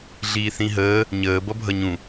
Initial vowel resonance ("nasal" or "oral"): oral